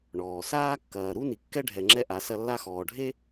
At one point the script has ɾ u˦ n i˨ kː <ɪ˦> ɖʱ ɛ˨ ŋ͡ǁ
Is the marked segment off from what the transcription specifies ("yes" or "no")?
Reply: yes